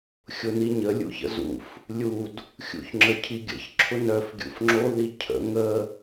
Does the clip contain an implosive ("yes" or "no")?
no